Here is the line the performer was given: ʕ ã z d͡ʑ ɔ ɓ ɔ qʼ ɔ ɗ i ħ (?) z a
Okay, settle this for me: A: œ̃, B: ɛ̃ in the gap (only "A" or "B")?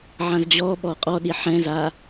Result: B